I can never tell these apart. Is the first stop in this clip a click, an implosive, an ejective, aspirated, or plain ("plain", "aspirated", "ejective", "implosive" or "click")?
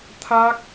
aspirated